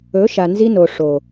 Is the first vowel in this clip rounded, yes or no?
yes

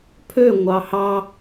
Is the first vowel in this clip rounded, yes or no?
yes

